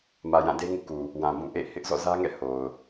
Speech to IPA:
m ä˨ j ã˦˨ d e˦ ŋ ṵ˦˨ k u˨ | w ã˨ b ũ˦˨ ʔ ḛ˦˨ h ɪ˦ ʔ z ɔ̰˦˨ z ä˦ ŋ ɛ̰˦˨ h o˨ ʊ̯

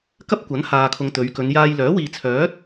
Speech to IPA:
k ɐ˥ p̚ kʷ ɐ˨˥ n h aː˨ kʰ ʊ˨ ŋ t̪ ɵ˨˧ ɥ k ɵ˨˧ n j aː˧ j l œː˨˥ w iː˨ t͡sʰ œː˨˥ t̚

